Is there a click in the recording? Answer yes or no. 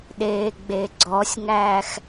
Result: yes